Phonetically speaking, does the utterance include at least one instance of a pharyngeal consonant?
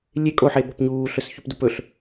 yes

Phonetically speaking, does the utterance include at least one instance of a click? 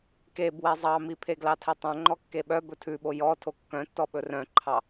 yes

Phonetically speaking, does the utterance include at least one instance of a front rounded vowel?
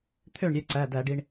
yes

